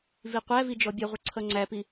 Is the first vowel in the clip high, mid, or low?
high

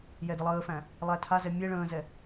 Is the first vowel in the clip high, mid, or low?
mid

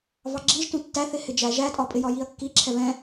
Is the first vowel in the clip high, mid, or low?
low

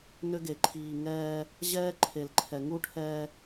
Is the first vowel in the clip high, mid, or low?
high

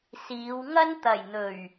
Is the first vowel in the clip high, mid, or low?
high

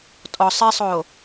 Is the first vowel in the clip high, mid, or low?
mid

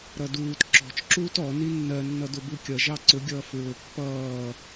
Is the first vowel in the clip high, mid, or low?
mid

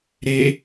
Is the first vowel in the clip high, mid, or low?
mid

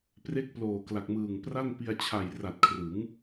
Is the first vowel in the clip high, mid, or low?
mid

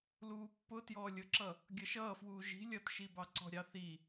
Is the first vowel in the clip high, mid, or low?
high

